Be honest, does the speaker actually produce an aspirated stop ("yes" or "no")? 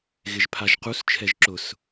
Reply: yes